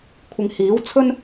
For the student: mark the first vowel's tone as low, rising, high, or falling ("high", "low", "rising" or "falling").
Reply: low